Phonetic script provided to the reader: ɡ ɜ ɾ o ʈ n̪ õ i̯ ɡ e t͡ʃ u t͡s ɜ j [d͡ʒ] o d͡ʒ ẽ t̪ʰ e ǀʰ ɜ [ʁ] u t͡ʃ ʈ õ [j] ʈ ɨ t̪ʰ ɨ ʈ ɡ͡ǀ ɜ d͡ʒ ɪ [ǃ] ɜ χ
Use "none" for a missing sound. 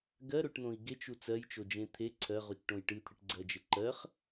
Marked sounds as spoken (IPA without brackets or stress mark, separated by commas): t͡ʃ, ʁ, j, ǃ